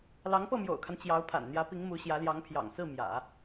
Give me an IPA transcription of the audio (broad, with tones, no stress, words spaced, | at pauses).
lɑ˧˥ŋpɤ˥˩mjo̰˨˩ʊ̯kʰa˦n t͡ɕjɑ˧˥ʊ̯pʰa̰˨˩n n̪jä˧˥pi˧˥ŋ mu˧˥ɕjä˧˥ljɑ˧˥ŋpʰjɑ̰˨˩ŋ sɹ̩˥˩mjä̰˨˩˦